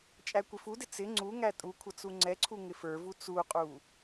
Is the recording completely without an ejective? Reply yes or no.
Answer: no